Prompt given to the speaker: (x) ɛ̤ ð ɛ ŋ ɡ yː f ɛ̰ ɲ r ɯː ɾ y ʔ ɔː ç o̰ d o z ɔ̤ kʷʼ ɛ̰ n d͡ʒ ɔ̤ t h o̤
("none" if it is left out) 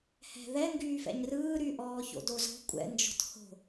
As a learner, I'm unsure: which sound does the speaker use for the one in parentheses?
h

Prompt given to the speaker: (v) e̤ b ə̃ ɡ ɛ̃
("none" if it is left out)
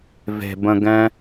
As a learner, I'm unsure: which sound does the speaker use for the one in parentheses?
v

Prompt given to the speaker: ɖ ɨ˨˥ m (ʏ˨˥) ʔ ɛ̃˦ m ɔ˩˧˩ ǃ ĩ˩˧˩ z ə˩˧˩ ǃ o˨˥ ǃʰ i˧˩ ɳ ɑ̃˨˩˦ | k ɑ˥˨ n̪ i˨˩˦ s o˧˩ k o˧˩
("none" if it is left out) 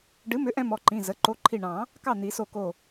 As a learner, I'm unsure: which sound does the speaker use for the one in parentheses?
ʏ˨˥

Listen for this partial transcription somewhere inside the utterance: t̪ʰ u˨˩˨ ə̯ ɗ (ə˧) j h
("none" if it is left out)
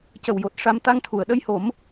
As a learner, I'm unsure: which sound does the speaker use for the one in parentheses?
ə˧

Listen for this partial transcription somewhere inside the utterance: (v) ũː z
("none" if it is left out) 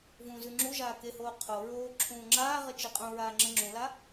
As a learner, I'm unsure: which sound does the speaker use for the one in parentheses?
v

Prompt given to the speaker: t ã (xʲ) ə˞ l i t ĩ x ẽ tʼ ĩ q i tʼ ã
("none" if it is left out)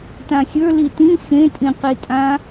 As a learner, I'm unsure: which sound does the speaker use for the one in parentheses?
xʲ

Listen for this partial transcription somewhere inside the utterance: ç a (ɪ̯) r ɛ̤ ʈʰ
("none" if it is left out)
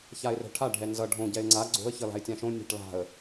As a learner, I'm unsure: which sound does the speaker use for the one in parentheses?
ɪ̯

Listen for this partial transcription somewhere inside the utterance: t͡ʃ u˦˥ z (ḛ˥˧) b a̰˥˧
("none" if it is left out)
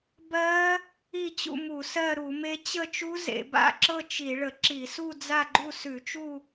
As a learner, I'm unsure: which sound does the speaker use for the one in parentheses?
ḛ˧˩˧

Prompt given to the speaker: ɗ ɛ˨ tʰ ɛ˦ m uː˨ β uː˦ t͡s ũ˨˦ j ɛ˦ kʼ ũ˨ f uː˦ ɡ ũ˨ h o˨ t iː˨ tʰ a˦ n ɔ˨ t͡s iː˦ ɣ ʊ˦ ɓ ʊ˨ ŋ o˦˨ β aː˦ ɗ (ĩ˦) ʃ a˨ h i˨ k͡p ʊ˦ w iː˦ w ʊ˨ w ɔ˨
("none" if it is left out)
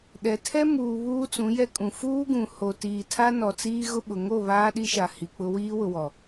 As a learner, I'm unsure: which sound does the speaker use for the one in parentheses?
i˦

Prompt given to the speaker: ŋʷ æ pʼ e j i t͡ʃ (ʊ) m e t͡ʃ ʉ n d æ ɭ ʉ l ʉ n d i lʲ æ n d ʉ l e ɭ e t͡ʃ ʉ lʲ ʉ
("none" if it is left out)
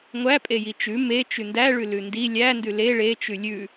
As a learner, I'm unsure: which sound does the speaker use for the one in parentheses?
ʉ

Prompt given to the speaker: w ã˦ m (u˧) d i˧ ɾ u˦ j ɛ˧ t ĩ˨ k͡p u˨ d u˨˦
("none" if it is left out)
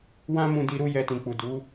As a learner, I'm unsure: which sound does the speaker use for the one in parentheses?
ũ˧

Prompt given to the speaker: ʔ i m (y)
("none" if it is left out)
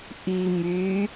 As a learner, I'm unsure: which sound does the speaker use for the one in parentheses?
y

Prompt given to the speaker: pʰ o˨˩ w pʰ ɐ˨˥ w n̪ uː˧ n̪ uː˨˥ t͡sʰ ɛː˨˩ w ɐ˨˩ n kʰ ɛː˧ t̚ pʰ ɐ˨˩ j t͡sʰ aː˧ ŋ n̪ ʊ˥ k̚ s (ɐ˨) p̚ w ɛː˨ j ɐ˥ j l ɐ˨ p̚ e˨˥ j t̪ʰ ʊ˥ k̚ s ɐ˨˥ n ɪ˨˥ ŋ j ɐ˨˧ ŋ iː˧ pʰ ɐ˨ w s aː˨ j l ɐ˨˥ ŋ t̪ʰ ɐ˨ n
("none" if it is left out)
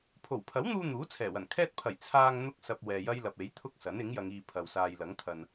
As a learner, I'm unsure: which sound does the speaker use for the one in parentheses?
ɐ˨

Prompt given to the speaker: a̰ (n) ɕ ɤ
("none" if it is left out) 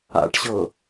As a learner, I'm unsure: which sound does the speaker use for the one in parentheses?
ʈ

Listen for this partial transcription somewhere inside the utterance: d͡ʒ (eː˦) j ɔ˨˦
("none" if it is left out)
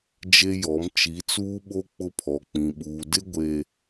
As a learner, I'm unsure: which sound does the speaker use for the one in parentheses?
e˦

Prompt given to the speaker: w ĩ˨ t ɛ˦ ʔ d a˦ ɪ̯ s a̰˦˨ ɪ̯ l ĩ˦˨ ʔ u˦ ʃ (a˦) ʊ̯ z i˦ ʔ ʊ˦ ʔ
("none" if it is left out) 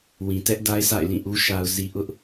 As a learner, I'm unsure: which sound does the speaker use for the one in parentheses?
a˦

